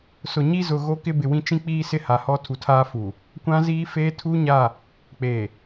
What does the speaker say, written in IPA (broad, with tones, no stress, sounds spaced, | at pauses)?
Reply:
s ʊ˨ ɲ i˦ z ʊ˨ ɣ o˦ k ɪ˦ b ɪ˨ w ĩ˦ t͡ʃ ĩ˦ k͡p iː˦ s ɪ˦ h a˨ h ɔ˦ tʰ u˨ tʰ aː˦ f uː˨ | kʷ ã˦ z iː˦ f eː˦ tʰ u˦ ɲ a˦˨ | k͡p eː˨